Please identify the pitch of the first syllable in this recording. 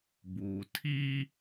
low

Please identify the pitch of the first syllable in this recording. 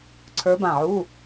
rising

